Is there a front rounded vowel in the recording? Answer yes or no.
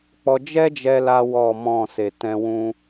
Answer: no